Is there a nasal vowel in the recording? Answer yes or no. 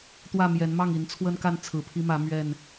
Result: no